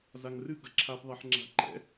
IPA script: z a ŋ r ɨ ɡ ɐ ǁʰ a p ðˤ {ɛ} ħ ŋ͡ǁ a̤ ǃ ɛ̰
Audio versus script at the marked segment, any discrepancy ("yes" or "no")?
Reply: yes